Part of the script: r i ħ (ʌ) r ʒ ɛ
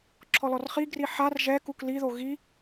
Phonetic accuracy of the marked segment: incorrect: a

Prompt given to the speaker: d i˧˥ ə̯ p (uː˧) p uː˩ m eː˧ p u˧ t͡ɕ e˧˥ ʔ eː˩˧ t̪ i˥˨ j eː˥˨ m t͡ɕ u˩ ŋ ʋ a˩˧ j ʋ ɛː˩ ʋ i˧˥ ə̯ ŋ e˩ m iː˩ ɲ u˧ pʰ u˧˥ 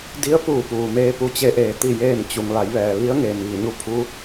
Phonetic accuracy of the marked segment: incorrect: uː˧˩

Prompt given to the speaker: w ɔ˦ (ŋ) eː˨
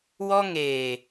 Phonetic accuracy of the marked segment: correct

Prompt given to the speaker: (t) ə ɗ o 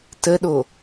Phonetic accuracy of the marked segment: correct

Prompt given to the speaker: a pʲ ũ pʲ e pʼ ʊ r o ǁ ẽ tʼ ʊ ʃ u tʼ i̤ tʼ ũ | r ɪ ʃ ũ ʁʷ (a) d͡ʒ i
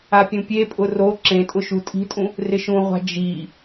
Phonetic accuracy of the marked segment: incorrect: a̤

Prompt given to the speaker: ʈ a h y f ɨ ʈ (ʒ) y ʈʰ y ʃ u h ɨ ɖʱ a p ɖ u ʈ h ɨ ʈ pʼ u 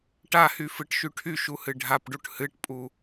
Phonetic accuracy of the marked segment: incorrect: ʃ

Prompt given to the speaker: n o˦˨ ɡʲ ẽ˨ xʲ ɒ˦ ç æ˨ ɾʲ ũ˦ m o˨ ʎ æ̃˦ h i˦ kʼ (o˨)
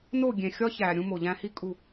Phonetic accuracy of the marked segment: incorrect: u˨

